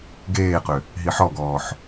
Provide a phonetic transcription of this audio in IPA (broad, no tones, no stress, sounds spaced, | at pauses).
ɡ eː q ʏ | ɦ i ħ ɔ ɡ ɔː ħ